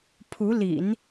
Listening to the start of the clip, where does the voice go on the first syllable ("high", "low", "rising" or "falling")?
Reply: rising